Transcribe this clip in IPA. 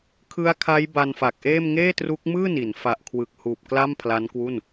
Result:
kʰ ɯ˦˥ a̯ kʰ a˦˥ j b a˧ n f a˨˩ k̚ ʔ eː˥˩ m ŋ eː˥˩ t r u˦˥ k̚ m ɯː˥˩ n i˩˦ n f a˨˩ ʔ kʰ w ɯ˨˩ k̚ h uː˨˩ p̚ k l a˥˩ m pʰ l a˦˥ n k w u˥˩ n

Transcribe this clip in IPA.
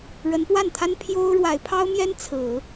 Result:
ɻ ə˧˥ n p w a˥˩ n t̪ʰ a˥ n pʰ j o˥ ʊ̯ ɻ w a˧˥ ɪ̯ pʰ ɑ˥ ʊ̯ m j ɛ˥ n t͡sʰ ɹ̩˨˩˦

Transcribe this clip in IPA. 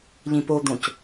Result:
ʎ ĩ p o d̪ õ c

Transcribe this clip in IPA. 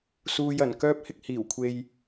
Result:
s uː˨ j ɐ˨˩ n k œː˥ p̚ h ɪ˥ k̚ h iː˨˩ w kʷʰ e˧ j

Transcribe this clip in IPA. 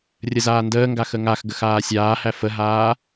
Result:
rʲ ə z aː n d əː ŋ ɡ a x ə ŋ a x ɡ ə x aː sʲ aː h æ f ə ɦ aː

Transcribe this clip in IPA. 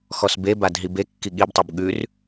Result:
x ɔ s b e b a d ɦ i b e kː i ɠ i b tˤ o b ɠ ʉ r

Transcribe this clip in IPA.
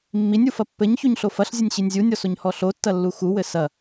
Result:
mː i nʲ u f ɐ pː ɘ ɲ ç u ɲ ɬ o f ɐ ɬ zʲ ɘ nʲ ɕ i nʲ zʲ u nʲ ɔ s o ɲ h ɔ ɬ o tː ɐ lː u x u w ɘ s ɐ

